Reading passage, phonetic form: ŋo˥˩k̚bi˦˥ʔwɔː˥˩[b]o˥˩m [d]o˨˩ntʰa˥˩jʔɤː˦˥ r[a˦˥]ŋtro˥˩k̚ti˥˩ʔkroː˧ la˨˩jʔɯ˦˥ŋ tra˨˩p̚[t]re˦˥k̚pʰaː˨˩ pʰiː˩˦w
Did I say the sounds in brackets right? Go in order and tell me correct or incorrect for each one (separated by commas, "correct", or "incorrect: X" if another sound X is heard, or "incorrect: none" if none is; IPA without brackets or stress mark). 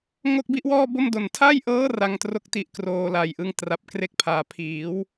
correct, correct, correct, incorrect: k